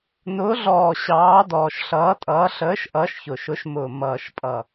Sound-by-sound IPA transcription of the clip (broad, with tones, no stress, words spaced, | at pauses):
nʊː˨˦ɮɔː˨˩ ɕɑː˨˦dɔː˨˩ʃɬʌː˨˦tʼʌː˨˦ ɬəː˨˦ʃ ʔʌː˨˦ʃçʊ˨˩ʃʊ˨˦ʃmʊː˨˩ mʌː˨˩ʃpʼʌ˨˩